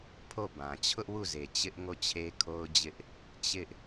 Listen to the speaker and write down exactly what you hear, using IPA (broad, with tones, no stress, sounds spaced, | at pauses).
pʰ o˦˨ b ã˨ t͡ɕʰ ʊ˦ ʔ w u˦˨ z e˨ t͡ɕ ɪ˦ ʔ ŋ o˦˨ t͡ɕʰ e˦ kʰ o˦ ʊ̯ d͡ʑ ɪ˦ ʔ | t͡ɕ ɪ˦ ʔ